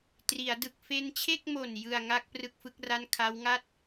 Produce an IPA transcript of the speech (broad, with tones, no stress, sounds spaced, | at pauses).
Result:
t r i˩˦ a̯ d ɯ˨˩ k̚ f e˧ n t͡ɕʰ e˥˩ k̚ m o˨˩ n j ɯ˨˩ a̯ ŋ a˥˩ k̚ p r ɯ˥˩ k̚ f ɯ˦˥ k̚ r a˥˩ n kʰ a˦˥ w ŋ a˥˩ t̚